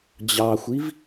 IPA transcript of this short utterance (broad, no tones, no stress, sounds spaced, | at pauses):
d͡ʑ ɑ xʷ i v